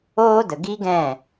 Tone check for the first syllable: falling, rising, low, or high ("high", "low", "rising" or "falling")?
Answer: high